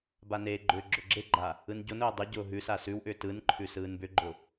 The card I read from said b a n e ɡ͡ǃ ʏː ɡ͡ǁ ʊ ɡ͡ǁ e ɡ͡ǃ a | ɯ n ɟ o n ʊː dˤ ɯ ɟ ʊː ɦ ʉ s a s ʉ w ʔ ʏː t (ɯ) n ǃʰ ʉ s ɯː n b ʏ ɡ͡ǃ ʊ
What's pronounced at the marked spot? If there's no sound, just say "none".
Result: ɯ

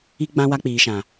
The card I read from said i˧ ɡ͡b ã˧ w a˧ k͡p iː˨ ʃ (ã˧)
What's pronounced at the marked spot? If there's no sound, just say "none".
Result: ã˨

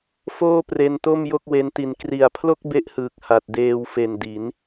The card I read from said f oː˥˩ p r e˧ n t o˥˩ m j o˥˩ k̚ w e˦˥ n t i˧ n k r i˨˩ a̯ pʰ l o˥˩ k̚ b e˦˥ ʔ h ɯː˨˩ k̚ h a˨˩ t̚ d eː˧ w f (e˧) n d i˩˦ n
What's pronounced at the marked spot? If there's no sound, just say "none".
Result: e˨˩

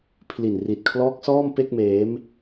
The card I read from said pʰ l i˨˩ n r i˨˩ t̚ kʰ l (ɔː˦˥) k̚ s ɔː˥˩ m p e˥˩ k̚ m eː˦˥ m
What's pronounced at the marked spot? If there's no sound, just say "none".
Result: ɔː˦˥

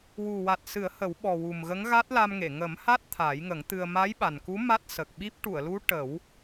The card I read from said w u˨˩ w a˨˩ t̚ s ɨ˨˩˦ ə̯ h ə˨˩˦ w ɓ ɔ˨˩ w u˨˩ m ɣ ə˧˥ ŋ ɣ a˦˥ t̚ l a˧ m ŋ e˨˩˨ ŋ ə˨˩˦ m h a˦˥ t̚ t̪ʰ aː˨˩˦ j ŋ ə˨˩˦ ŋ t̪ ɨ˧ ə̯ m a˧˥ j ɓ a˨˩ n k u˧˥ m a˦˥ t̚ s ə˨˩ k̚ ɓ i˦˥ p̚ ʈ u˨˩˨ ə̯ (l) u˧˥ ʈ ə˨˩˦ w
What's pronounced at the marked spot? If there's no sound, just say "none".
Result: l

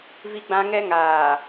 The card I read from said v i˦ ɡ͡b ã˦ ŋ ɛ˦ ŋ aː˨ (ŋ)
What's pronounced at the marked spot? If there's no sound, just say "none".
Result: none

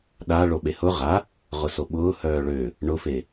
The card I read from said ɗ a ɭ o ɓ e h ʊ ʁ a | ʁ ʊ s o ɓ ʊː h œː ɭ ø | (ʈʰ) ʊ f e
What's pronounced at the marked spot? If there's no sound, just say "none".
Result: ɳ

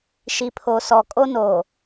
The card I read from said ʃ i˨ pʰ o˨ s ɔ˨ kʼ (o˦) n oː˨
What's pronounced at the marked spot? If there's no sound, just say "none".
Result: o˦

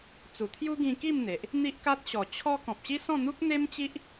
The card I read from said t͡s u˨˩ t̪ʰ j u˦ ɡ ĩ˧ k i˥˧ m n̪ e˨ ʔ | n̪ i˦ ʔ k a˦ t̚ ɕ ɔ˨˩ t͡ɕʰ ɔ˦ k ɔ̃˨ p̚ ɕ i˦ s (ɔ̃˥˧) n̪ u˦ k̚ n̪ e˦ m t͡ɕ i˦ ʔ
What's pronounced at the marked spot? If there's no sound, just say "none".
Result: ɔ̃˥˧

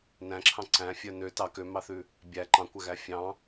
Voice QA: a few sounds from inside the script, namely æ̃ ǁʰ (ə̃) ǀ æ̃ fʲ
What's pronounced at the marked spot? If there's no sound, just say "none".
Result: ɑ̃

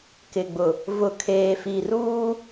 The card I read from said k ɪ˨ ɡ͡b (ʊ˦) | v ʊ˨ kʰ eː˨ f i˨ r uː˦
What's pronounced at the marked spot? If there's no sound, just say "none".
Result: ʊ˨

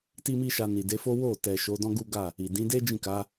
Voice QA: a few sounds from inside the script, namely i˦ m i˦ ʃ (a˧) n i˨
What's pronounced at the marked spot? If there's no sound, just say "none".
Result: a˧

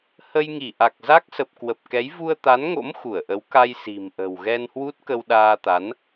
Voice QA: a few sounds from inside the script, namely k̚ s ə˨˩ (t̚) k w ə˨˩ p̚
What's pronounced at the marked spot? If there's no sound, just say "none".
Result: p̚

